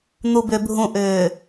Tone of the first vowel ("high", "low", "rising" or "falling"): low